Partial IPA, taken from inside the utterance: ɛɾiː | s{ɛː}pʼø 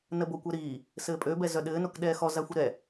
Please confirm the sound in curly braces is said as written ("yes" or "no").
no